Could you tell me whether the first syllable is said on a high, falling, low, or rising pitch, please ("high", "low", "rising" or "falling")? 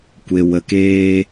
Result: low